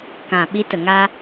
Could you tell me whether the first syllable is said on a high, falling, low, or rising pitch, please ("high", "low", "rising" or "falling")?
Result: low